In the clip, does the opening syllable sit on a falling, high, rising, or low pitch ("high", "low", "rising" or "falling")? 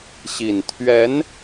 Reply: low